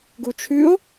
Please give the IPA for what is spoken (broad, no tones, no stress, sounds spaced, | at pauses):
ɡ u t͡ʃʰ ʉ o̯